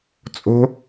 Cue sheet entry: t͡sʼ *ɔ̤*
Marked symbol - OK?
no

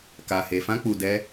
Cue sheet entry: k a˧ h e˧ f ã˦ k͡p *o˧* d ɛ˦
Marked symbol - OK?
no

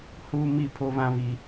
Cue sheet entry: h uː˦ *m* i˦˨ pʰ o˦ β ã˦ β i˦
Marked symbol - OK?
yes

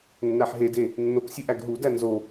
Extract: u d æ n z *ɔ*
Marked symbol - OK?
no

